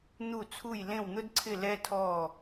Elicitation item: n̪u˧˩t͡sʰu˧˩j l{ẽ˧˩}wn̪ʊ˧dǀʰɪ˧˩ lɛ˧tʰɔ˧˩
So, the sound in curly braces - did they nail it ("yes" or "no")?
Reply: yes